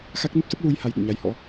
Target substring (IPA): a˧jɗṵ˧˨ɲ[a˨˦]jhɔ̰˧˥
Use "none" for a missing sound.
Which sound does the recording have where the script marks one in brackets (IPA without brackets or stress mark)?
a˨˦